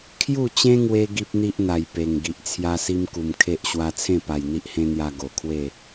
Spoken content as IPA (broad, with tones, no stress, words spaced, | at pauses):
kʰju˥˧t͡ɕẽ˦ŋwe˧ ɡi˦p̚n̪i˦ʔn̪a˨˩j pe˨˩ŋ ɡi˨ʔt͡sʰja˧si˧m ku˨˩mkʰe˦ʔ ɕwa˧t͡sʰẽ˥˧pa˨˩j n̪i˦ʔhẽ˦n̪ja˧ ɡo˨˩kʰwe˥˧